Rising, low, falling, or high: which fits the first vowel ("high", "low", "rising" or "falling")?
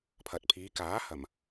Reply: low